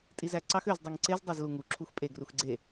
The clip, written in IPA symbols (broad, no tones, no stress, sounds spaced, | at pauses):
tʼ i z æ ǀ ɑ x ø z dˤ u ŋ ǀ e z dˤ ɑ z l u ŋ u ǁʰ u x pʼ e ɡ r u x ɡ͡ǀ e